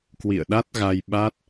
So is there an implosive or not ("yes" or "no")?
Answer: yes